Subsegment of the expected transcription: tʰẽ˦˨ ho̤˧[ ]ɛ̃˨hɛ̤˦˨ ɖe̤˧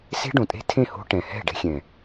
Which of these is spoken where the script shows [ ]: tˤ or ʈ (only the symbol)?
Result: ʈ